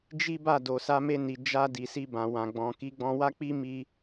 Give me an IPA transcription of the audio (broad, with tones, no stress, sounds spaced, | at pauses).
d͡ʒ i˦ b a˦˨ d o˨ s a˧ m e˧ n i˨ d͡ʒ a˧ d i˨ s i˧ b ã˨ w ã˨ ɡ͡b ɔ̃˨ k i˨˦ ɡ͡b ɔ̃˧ w a˦ k͡p i˦ m i˦